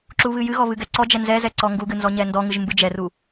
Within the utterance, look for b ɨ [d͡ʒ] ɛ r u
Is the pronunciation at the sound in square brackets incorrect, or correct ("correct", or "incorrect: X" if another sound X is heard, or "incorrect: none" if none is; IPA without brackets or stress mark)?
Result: correct